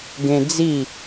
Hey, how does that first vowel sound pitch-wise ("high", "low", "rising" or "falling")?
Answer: high